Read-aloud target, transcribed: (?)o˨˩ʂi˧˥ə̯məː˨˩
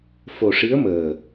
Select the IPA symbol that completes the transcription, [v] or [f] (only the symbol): f